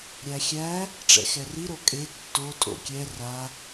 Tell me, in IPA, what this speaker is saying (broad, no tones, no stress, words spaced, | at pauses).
ɾʲæxʲæ | ʈ͡ʂɛ̰xɛri ɾokʼe tːo tʼo̰kʲɛ ra